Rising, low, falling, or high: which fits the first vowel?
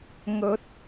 rising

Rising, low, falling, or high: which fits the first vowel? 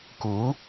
rising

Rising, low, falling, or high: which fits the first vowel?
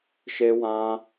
high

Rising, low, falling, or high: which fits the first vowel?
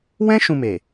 high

